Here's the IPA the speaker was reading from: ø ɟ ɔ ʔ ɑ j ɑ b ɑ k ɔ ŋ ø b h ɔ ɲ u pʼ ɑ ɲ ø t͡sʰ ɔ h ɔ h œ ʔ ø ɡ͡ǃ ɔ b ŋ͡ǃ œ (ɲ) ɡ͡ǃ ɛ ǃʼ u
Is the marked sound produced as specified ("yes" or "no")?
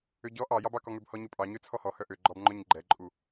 yes